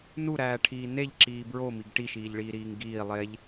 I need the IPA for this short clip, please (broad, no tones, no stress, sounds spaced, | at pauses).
n u ɾ æː ʈʰ iː n e ʎ ǁ iː b ɹ o m i ɡ ʈ i ʃ iː ʎ ɭ iː ɾ iː ŋ ɡ iː lˠ e ʎ